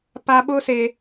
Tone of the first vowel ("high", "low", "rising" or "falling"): high